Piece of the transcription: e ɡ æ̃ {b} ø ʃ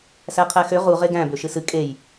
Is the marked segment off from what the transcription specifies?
no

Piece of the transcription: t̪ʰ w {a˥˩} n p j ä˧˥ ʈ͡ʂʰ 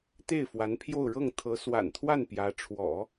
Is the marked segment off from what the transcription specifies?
no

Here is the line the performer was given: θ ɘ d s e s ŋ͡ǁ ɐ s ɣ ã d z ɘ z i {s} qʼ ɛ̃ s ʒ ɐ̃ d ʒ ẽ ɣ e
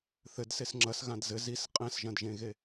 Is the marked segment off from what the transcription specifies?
no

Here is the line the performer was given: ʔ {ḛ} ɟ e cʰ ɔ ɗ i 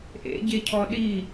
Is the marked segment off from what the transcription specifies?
no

